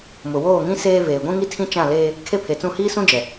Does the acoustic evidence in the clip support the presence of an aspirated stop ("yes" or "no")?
yes